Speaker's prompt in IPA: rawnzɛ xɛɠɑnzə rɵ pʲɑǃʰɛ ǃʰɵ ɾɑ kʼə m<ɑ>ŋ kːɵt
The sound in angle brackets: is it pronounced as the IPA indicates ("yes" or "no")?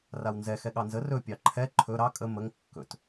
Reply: no